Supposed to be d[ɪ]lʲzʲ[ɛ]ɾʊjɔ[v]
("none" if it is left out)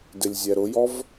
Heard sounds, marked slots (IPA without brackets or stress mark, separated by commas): ɪ, ɛ, v